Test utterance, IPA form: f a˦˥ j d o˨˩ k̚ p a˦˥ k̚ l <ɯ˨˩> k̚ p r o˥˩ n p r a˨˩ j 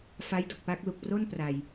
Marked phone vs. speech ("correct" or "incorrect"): incorrect